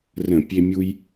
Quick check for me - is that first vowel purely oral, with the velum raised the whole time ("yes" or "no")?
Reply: no